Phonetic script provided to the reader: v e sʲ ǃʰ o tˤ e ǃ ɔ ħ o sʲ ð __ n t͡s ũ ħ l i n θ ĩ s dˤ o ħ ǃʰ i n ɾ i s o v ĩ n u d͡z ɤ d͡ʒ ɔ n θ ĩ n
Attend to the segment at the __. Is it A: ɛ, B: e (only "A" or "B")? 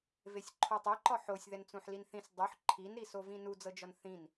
A